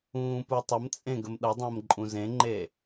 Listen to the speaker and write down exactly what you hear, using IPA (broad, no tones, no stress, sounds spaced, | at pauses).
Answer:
ũː p u tˤ ə m t͡sʼ ẽ ɡ ə m ɗ ʌ dˤ ə̃ː m ǃʼ ũ z ẽ ŋ͡ǃ e